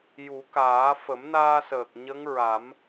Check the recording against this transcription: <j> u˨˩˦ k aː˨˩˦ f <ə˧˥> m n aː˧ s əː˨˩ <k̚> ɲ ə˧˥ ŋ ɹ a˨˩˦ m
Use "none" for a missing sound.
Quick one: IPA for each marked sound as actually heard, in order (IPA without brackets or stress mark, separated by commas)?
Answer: j, ə˨˩˦, k̚